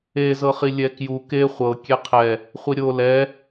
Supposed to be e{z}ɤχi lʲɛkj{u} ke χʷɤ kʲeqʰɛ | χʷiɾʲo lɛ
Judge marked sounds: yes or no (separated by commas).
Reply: yes, yes